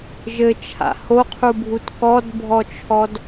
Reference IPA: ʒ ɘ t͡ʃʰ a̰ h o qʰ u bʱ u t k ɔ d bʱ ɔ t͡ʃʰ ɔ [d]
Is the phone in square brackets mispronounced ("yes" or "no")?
no